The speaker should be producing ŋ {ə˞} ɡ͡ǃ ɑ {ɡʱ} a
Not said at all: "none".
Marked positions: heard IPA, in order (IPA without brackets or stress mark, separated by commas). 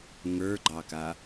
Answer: ə˞, k